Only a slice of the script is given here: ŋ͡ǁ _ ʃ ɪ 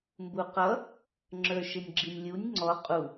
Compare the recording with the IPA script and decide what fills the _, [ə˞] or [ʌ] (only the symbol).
ə˞